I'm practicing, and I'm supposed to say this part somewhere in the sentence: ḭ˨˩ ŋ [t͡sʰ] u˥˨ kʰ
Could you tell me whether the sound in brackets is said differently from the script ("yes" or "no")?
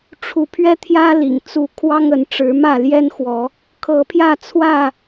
yes